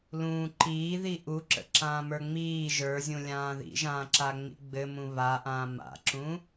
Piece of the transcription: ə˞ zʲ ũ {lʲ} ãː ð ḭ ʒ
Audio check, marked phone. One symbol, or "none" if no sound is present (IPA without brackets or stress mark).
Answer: lʲ